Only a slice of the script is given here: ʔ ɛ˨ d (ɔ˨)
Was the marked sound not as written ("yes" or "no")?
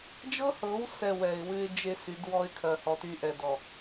no